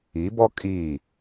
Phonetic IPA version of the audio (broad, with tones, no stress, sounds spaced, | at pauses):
i˨˦ b ɔ˦ kʼ iː˦˨